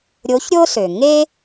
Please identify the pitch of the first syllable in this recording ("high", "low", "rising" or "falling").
rising